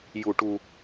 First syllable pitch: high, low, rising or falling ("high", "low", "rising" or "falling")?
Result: low